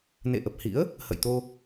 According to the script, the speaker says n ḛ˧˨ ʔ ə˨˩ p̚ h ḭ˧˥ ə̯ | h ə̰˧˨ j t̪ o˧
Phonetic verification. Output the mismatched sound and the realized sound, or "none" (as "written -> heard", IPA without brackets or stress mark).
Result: none